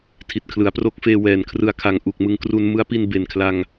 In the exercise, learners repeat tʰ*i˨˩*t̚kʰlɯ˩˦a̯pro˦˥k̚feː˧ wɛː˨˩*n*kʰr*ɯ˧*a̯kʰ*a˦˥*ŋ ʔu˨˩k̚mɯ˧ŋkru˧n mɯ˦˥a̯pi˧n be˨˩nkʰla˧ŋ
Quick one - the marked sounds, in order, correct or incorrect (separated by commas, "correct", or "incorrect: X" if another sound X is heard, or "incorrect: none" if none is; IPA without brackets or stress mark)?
correct, correct, correct, incorrect: a˨˩